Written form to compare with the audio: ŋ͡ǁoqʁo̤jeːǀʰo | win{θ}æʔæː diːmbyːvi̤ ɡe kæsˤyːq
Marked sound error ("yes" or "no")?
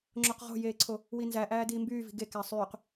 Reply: yes